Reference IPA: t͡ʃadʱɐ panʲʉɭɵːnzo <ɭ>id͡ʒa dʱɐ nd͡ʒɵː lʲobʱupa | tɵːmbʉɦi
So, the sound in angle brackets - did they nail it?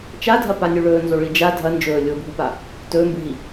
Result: yes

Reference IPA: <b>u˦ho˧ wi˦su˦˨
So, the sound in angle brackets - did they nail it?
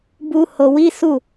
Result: yes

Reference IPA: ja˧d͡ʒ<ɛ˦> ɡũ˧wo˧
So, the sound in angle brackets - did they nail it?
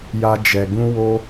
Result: no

